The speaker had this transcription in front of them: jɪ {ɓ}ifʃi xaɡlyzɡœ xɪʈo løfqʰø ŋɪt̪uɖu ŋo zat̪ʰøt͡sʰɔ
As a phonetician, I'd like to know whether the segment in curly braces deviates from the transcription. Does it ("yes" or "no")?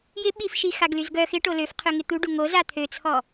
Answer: no